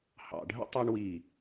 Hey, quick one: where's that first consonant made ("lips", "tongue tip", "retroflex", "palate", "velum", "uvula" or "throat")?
throat